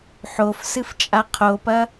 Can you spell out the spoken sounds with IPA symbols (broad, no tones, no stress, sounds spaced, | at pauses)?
ħ o f s ɨ f t͡ʃʼ a qʰ o p ɐ